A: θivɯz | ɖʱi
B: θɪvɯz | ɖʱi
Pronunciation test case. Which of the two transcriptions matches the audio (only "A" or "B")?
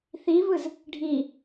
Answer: A